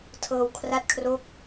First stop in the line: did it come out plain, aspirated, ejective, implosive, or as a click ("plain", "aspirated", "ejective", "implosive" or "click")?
aspirated